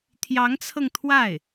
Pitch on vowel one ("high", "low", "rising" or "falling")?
rising